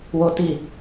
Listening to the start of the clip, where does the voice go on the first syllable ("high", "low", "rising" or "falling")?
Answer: high